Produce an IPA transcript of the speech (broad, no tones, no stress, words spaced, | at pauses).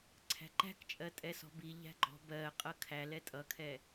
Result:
ǀʰæ̤ǃæ̤kt͡ʃʼɜ tʼɛsɔ̤bi ʎæ̤ɡ͡ǃɔ̤ bɜ qʼʌkʰælɛ tʼʌkʰɛ